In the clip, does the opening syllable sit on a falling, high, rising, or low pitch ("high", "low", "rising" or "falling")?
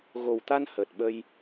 low